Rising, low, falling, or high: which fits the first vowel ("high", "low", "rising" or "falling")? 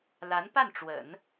rising